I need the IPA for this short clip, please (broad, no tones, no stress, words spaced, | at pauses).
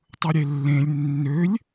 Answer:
tˤɯɾʲelːẽlʲ nːølʲ